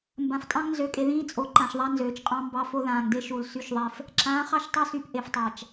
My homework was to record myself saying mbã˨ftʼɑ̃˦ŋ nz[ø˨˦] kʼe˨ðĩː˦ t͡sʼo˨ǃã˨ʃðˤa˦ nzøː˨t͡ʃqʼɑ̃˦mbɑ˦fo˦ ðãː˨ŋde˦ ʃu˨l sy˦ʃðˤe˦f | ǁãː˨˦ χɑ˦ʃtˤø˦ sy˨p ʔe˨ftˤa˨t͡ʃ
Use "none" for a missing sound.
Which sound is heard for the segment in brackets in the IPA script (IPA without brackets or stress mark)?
ø˨˦